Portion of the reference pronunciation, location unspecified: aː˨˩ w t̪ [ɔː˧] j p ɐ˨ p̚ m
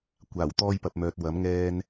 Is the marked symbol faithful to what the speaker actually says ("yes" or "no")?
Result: yes